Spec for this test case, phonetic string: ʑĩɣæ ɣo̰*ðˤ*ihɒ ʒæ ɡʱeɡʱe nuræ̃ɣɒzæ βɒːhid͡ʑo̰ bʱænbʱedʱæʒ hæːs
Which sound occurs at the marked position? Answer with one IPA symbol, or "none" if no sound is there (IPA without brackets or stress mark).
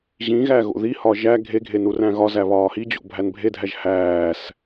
ð